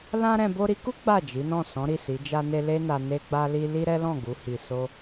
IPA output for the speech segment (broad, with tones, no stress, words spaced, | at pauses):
lã˦ɾɛ̃˧ bo˧ɾi˧ku˦ ɡ͡ba˦˨d͡ʒi˨˦nɔ̃˦˨ sɔ̃˨˦ɾi˦˨si˨˦ d͡ʒa˧ ne˦ le˦na˧ ne˦ɡ͡ba˦li˦ li˦ ɾɛ˦lɔ̃˦˨ɡu˨˦ hi˧so˦